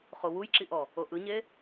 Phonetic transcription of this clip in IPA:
χ o w u j ǁ i ʔ ɔ | o ʔ ɯ ɲ e

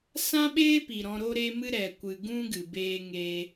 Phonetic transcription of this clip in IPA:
s ã˦ ɓ eː˦ p i˨ ɾ ɔ̃˧ ɾ o˦ ɾ e˦ m ɨ˦ ɾ ɛ˨ kʷ ɨ˨ ɡ ũ˦ ɡ ɨ˨ b eː˧ ŋ eː˧

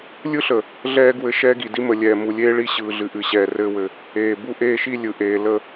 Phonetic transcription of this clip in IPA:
lʲ ɯ˦ ɬ ə˨ | ɮ ɛː˦ ɡ w ɘ˦˨ ʃ ɛː˦ ɡ i˨ d i˦ m ə˨ lʲ ɛː˨ m u˨ lʲ eː˦ ɭ i˦ ɕ ɯː˨ ɮ ɨ˨ ʔ ɨ˨ ɕ ɛː˨ r ɘː˦ w ɘ˨ | eː˨ b u˦ ʔ eː˦ ʃ i˦ lʲ ɯ˨ ʔ eː˨ l ə˦˨

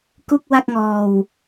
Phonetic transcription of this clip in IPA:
k u˥˩ k̚ w a˥˩ k̚ ŋ ɔː˧ w

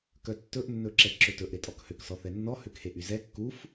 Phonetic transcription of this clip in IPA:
k œ tː ɵ ʔ nː ɵ ǁ ɛ ǁ ɵ t ɵ ʔ ɾ e tʼ ɔ k h ø k s ɔ θ ɛ nː ɔ h ø k h e ʔ y z ɛ kː u f

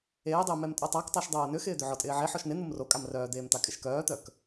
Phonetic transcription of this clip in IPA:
eː dˤ ɪː m ɛ m tʼ o tˤ a k tˤ æ ʃ dˤ oː n ʏ x ɪː d̪ ʏ ʕ ɔ tʼ ɪː ʕ e ħ ɔ ʃ n ɪ n̪ u m r o kʼ a m r œː d̪ eː m t̪ a kʼ ɪ ʃ k œː t̪ œ k

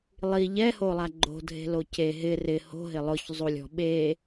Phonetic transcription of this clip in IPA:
lˠ i ʎ ɛ h o lˠ a ɡ͡ǃ o̤ dʱ e̤ l o c e ɦ ɪ r ɪ h o̤ ɦ ɪ lˠ ʊ ç zˤ u lʲ ɔ̤ ɓ e

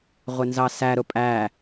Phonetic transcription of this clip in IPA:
ʁʷ ɪ n z ɑ s æ ɾ ʊ pʼ æ

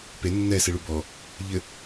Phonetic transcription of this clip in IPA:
p e nː ɛ s ɨ ɭ u b ɔ | ʎ ɘ

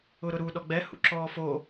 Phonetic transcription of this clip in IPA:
ʊ ɾ ʊ ɾ u ɗ ɔ ɡ͡b ɛ h ṵ ǁ ɔː f o

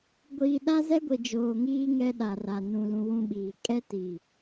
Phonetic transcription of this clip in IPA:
ɡʷ iː˨ ɗ a˦ z ɛ˦ ɡʷ i˨ d͡ʒ oː˨ ŋ iː˦ ŋ ɛ˦ ɗ a˨ r a˨ n ũ˨ l ũ˦ w ũ˦ ɓ iː˨ kʼ ɛ˦ t i˨

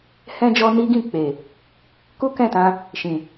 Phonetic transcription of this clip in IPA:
h ɛ̃˦ d͡ʒ ɔ˦ n i˦ ɡ ĩ˦˨ k͡p e˨ | k u˦ k ɛ̃˦˨ t ã˧ | ʃ ĩ˨

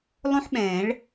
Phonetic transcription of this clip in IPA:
lˠ õ˥ ħ ɓ ɛ̃ː˨˩˦ ɭ

